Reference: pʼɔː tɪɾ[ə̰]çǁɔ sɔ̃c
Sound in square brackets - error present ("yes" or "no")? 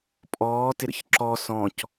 no